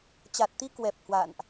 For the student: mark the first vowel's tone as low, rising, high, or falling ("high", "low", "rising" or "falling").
low